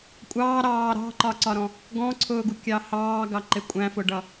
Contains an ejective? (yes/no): yes